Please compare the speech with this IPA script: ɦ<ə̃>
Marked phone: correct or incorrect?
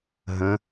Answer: correct